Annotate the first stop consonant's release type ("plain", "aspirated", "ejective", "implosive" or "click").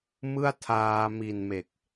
aspirated